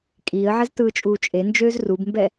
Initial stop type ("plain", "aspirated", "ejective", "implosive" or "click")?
ejective